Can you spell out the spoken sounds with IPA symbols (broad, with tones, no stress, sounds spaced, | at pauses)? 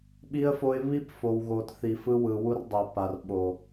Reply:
ɓ i˦ ə̯ f o˦ ɪ̯ β i˦ p f o˨ w ɣ o˨ t θ i˨ f ɯ˦ w ɯ˨ w u˦ r dˤ ɛ˨ p a˨ r ɓ o˨